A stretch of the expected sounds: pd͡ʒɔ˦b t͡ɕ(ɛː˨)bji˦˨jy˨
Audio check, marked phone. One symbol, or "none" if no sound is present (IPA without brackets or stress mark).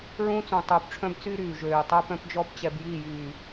ɛ˨